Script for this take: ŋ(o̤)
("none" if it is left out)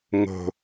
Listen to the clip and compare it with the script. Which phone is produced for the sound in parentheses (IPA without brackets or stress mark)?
o̤